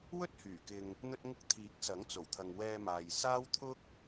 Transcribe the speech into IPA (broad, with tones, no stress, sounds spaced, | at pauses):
w ɵ˥ t̚ h yː˨˩ k ɪ˨ ŋ | n̪ ɵ˧ t̚ ŋ ʊ˧ k̚ t̪ʰ iː˨˥ k̚ s ɐ˨˥ ŋ t͡s o˨˩ w t̪ʰ ɐ˨ ŋ w ɛː˧ m aː˨ j s aː˥ w t̪ʰ ʊ˥ k̚